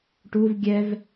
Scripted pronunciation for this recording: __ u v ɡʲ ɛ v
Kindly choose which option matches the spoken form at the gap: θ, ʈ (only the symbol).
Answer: ʈ